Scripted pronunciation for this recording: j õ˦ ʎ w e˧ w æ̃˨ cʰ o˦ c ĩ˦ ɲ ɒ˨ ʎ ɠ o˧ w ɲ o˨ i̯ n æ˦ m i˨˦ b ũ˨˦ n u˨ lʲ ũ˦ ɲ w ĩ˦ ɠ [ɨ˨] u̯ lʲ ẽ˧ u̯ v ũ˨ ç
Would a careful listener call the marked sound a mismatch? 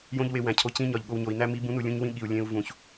yes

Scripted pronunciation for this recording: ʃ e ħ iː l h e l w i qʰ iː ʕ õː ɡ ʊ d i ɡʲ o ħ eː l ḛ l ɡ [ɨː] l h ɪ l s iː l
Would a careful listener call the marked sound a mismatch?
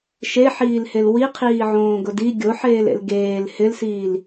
yes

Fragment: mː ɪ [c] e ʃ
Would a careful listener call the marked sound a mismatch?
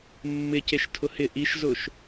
no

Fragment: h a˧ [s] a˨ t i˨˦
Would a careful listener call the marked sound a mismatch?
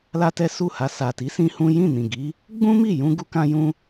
no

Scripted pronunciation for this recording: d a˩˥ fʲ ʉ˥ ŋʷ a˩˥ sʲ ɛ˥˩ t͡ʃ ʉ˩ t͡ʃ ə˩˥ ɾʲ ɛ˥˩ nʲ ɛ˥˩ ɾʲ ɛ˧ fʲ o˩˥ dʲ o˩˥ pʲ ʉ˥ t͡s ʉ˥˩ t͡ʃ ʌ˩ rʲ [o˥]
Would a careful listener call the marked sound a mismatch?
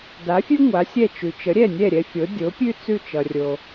yes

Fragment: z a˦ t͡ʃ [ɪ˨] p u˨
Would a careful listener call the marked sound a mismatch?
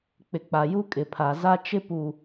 yes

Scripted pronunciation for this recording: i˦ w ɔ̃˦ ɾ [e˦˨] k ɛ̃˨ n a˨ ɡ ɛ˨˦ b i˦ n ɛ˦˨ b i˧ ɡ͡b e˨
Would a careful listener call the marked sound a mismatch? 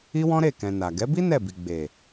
no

